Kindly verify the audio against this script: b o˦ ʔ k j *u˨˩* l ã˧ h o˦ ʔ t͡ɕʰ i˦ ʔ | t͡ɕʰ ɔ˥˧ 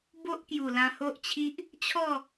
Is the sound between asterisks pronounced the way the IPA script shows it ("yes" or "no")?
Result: yes